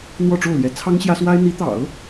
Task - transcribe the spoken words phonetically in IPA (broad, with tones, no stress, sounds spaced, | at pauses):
n̪ w ɔ˥˧ ʈ͡ʂ o˥˩ ʊ̯ l j ɛ˧˥ t͡sʰ ɑ˥ ŋ ɕ j ä˥ s w a˥ ɪ̯ n̪ i˧˥ t̪ ɑ̰˨˩˦ ʊ̯